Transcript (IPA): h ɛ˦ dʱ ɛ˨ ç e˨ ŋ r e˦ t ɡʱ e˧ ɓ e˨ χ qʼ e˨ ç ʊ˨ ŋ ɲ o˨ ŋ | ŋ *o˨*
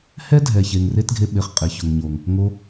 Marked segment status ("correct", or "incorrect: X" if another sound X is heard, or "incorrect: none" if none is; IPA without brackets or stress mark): incorrect: o˧